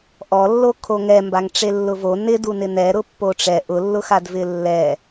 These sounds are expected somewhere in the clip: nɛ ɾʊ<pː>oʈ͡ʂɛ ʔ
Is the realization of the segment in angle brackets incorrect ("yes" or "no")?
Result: no